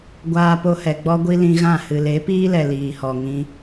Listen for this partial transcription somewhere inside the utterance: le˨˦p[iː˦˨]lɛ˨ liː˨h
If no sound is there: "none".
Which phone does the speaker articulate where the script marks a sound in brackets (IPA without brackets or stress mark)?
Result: iː˦